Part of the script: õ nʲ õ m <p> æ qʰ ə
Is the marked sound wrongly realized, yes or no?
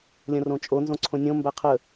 yes